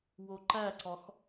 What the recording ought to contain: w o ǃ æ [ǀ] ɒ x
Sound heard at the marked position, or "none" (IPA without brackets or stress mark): ǀ